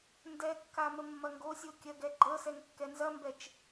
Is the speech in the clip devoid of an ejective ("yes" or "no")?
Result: yes